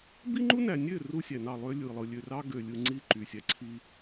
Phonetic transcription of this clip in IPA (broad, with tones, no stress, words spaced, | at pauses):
bi˦ŋ͡ǃu˦næ˨nʲø˦˨ ru˦sʲæ˨nɑ˦˨ lˠø˦lʲɯ˨lˠɯ˨ lʲø˨rɑ˦ɡø˨lʲɯ˨ ŋ͡ǀi˦˨ ǃy˨sʲæ˨ǀʰi˦